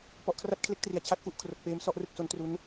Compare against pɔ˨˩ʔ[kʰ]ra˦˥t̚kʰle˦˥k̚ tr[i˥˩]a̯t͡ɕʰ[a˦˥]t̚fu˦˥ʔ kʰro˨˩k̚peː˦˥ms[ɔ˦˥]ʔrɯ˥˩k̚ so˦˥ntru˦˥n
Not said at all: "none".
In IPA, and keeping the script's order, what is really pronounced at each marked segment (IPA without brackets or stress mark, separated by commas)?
kʰ, i˨˩, a˦˥, ɔ˥˩